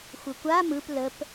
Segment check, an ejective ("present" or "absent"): absent